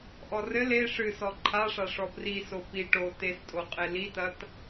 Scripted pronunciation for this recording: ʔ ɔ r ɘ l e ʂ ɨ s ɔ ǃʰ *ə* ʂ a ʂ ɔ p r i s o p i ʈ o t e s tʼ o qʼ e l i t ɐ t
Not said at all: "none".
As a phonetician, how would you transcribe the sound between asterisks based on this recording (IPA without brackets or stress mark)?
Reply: a